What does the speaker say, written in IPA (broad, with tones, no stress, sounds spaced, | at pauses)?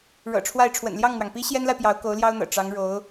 ɻ ɤ̰˨˩ ʈ͡ʂʰ w a˥˩ ɪ̯ ʈ͡ʂʰ w ə̰˨˩ n l j ɑ˥˩ ŋ n̪ w ɑ˩ ŋ p i˥ ɕ j ɛ˥ n l a˨ ɪ̯ p j ɑ˧˥ ʊ̯ k o˧˥ ʊ̯ l j ɑ˥ ʊ̯ n̪ ɤ̰˨˩ ʈ͡ʂ ɑ˧˥ ŋ ɻ o˧˥ ʊ̯